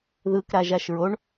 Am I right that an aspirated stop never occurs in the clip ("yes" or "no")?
yes